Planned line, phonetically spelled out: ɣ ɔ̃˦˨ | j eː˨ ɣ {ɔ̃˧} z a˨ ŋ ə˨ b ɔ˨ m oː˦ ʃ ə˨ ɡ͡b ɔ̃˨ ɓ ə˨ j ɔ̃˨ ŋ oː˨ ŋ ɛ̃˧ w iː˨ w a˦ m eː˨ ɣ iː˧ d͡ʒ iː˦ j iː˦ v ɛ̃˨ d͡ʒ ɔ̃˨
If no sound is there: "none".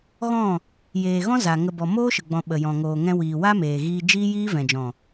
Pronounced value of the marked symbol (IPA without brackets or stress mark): ɔ̃˦